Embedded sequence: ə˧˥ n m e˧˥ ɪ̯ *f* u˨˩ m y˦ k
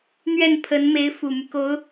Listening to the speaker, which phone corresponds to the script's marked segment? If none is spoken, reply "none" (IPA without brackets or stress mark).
f